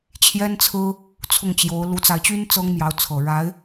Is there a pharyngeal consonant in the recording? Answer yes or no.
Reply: no